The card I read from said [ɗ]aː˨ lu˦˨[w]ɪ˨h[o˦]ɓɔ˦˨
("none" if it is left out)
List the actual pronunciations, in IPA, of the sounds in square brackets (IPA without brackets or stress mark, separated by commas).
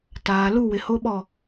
t, w, o˦